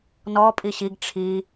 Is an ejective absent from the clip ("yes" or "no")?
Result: no